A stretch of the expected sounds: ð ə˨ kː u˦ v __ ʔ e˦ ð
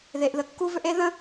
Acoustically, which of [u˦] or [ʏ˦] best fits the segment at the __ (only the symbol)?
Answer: ʏ˦